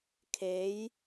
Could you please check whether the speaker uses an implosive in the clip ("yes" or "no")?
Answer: no